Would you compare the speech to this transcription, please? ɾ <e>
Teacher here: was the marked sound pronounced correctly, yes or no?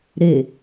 yes